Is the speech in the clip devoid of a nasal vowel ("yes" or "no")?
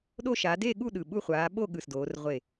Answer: yes